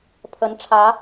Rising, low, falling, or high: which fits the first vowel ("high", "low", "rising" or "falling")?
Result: rising